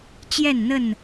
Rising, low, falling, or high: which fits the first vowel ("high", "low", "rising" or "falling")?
falling